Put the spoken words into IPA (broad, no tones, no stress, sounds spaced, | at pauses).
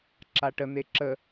ǁ a ʈ ə n̪ e ǁ ə